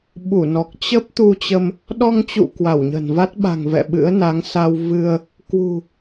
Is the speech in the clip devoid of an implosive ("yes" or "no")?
no